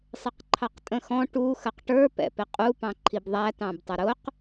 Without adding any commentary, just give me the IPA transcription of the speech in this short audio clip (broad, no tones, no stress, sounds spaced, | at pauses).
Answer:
sˤ ɪ q ǃʰ ɑ q tʼ ə̃ x ɔ̃ ʈ u x ə q ʈ ə˞ p ɛ̰ p ɪ qʼ u p ɑ̃ ǃʰ i b ðˤ æ t ɑ̃ b tˤ ə ɾ ʊ q